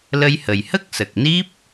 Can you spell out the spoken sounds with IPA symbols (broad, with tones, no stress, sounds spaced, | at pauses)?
l ə˧ j h ə˨˩ j h ə˦˥ k̚ s ə˨˩ k̚ n i˦˥ p̚